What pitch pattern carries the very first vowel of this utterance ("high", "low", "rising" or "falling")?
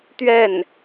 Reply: falling